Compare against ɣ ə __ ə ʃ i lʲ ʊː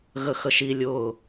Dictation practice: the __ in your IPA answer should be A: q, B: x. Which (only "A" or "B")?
B